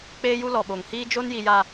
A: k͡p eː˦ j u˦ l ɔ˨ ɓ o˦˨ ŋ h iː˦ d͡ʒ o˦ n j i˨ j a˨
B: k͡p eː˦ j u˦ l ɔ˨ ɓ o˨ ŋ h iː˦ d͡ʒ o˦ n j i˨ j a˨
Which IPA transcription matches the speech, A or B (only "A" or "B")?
B